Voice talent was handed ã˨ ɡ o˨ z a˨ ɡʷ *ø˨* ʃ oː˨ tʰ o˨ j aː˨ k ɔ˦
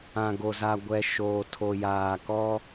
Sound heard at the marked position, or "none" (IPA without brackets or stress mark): ɛ˨